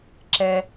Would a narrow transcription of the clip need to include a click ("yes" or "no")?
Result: yes